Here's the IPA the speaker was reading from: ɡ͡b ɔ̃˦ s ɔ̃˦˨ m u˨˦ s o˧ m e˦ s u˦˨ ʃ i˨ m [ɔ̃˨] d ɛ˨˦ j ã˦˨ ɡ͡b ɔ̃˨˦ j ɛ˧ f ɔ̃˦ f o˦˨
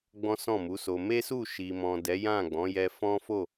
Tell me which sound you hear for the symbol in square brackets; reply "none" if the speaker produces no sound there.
ɔ̃˨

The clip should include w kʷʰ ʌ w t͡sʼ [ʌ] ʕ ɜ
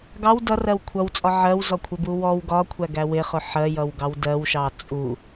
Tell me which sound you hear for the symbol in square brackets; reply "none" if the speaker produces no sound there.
ɒ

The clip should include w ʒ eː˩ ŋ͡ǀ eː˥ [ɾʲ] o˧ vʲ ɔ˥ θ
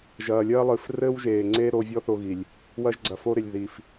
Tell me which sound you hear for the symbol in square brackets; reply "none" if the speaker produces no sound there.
ɾ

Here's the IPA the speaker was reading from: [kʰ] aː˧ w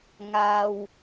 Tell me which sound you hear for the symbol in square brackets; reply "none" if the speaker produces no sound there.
ŋ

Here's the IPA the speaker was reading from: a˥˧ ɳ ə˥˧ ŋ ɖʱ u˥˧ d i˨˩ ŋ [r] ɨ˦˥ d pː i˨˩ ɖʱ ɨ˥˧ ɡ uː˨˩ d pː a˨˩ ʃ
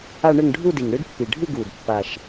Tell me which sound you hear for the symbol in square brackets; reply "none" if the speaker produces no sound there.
ɽ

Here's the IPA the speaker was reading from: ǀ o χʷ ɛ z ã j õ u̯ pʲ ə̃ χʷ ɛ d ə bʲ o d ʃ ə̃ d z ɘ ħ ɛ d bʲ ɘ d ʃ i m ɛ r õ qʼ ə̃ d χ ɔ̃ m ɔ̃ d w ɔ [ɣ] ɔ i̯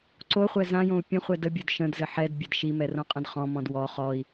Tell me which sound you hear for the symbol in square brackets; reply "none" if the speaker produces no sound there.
χ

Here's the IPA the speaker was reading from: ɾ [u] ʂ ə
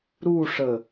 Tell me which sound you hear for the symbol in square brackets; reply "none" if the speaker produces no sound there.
u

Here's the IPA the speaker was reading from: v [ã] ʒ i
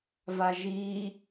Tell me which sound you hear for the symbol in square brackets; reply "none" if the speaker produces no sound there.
a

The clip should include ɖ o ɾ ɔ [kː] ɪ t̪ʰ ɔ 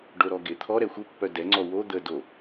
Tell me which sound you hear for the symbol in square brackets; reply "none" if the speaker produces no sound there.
ɡ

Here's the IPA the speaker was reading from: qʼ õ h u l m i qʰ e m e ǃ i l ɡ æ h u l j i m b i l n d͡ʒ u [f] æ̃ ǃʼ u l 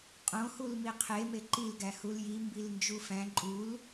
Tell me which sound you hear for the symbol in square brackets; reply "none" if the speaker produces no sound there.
f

